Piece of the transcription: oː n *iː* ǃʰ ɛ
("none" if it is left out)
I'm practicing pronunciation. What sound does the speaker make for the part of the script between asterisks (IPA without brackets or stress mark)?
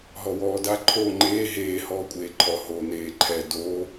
eː